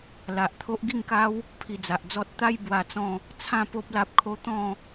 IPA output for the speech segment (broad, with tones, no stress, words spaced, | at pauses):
la˨ʔt̪ʰo˦ʔ ɡi˥˧ŋka˦w | pʰi˧d͡za˨ʔd͡zɔ˦t̚ t̪a˦j bwa˧t͡sɔ̃˥˧ | t͡sʰã˥˧ po˦p̚la˦p̚kʰo˦ t̪ɔ̃˥˧